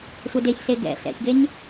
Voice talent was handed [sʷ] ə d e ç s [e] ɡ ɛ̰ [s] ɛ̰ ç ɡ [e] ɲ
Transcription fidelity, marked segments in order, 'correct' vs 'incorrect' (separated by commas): correct, correct, correct, correct